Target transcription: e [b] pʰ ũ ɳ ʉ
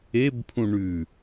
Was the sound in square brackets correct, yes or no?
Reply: yes